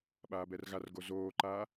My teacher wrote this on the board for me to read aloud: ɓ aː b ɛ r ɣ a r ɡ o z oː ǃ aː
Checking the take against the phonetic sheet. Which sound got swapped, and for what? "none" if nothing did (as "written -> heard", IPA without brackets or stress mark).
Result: none